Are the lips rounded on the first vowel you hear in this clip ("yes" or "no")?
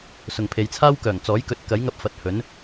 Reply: yes